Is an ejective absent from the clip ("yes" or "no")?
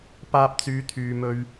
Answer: yes